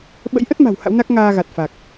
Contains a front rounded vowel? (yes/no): no